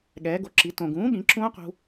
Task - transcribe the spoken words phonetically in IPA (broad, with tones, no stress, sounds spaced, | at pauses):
ɠ ɛː˩˧ ɡ o˩˥ ǁ i˩˧ t õ˩ ɡ ũː˩˥ ɠ ĩ˩˥ ǁ ũː˦˥ q ṳ˧